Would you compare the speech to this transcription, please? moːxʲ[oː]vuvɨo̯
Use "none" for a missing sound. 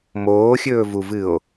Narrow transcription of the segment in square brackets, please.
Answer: ɵː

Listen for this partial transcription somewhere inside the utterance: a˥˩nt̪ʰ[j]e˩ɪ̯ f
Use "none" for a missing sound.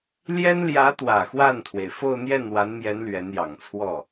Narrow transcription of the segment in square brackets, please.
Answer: w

